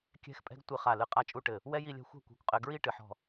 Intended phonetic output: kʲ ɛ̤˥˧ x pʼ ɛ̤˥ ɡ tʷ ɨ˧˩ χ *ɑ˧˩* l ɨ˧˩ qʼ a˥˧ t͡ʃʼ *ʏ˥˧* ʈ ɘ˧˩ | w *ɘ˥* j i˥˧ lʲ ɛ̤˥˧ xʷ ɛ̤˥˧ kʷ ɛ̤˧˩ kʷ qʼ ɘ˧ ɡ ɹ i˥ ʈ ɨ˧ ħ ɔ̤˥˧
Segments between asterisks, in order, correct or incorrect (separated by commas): incorrect, incorrect, incorrect